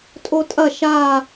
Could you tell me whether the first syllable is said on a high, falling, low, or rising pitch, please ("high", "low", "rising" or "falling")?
high